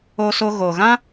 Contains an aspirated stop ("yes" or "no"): no